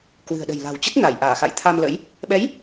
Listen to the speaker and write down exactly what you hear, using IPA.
k w ɨ̤˨˩ ə̯ ɗ ə̤˨˩ j l a̤˨˩ w t͡ɕ ə˦˥ t̚ n a˧˩ j ʔ aː˧˩ x a̰˧˨ j t̪ʰ a˧ m l ə̰˧˥ j | ɓ ɛ˨˦ j

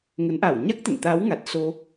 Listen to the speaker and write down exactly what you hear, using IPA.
ŋ ə˨˦ n ʔ a˧˩ w ɲ a˦˥ k̚ t̪ ə̰˧˨ n t̪ a˨˦ w ŋ a˨˩ t̚ s o˧

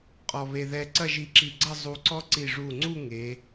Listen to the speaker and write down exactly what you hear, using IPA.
qʼ ɔ˧ β e˧ ð ɛ˧ ǀ ɐ˥˧ ʒ i˧ ǁ i˧˩ ɡ͡ǀ ɐ˥˧ zˤ u˧ ǀ ɔ˥ ǀ i˧˩ ʐ u˧˩ ŋ͡ǀ u˥˧ ŋ e˩˧

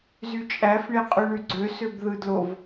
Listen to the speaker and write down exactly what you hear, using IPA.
z y t͡ʃʼ æ f ɳ e qʼ y ɳ y ɡ͡ǀ ø s ø b ð ɯ d l o v

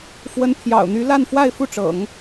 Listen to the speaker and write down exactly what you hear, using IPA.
f w ə˧˥ n pʰ j ɑ̰˨˩ ʊ̯ n̪ y˧˥ l a˥˧ n f w a˥˧ ɪ̯ f u˥˩ ʈ͡ʂ ɤ̰˨˩˦ ŋ

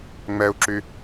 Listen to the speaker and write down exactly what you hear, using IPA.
ŋ͡m ɛ u̯ ǁ y

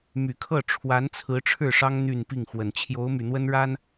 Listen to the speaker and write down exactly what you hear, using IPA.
m y˨˩ kʰ ɤ˥˩ ʈ͡ʂʰ w a˧˥ n t͡sʰ ɹ̩˧˥ ʈ͡ʂʰ ɻ̩˥˩ ʂ ɑ˥ ŋ n̪ y˥˧ n p i˥˩ ŋ x w ə˨˩ n t͡ɕʰ j o˧˥ ʊ̯ m y˨˩ n̪ w ə˥ n ɻ a˥ n

